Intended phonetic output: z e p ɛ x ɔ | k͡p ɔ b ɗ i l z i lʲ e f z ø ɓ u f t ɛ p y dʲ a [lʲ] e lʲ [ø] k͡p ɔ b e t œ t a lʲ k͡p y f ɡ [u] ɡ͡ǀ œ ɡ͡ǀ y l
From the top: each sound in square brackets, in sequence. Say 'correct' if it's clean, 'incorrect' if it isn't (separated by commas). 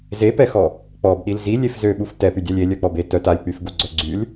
correct, incorrect, correct